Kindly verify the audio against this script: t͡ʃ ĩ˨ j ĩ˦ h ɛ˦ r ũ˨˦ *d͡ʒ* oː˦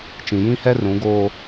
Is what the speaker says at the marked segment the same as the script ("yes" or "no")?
no